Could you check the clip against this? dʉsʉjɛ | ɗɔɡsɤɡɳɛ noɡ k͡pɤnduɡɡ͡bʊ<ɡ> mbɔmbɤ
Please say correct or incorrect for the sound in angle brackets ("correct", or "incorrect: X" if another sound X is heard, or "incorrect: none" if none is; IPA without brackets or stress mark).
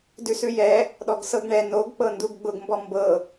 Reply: correct